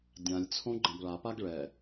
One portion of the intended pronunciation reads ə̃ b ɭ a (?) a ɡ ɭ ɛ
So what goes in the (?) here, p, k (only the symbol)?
p